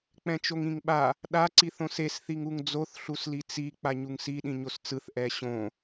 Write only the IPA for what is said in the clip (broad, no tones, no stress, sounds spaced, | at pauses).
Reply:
k͡p ɛ̃ t͡ʃ o ŋ ĩ ŋ ɓ a | ɗ a ǀ i θ õ s e s θ i ŋ u ŋ d͡z o θ ɬ u s l i t͡s i k͡p a ɲ u ŋ s i ɗ ĩ ɲ o s t͡s ɯ θ ʔ ɛ ɕ õ